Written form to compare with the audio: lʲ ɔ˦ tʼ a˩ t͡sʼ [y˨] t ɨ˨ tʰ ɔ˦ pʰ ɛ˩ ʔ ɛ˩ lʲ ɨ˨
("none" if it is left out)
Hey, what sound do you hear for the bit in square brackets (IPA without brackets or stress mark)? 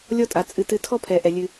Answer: ɨ˨